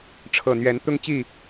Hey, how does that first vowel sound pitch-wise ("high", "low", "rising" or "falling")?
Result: low